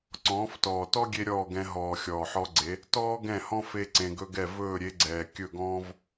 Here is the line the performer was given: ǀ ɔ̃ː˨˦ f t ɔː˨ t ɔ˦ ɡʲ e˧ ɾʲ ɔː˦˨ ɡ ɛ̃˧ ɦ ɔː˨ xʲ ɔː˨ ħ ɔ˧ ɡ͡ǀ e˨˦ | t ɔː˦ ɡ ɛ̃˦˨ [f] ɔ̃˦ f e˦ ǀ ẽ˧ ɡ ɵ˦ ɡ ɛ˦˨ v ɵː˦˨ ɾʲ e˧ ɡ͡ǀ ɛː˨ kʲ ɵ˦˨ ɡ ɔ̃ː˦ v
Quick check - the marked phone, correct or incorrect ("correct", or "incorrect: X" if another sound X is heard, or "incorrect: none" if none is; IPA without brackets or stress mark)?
incorrect: h